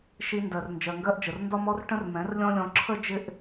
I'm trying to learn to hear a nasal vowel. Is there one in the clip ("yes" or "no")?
yes